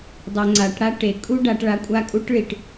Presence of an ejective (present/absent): present